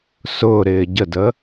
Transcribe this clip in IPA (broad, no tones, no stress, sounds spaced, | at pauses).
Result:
s ʊː ɾ ɪː ɟ ə d ə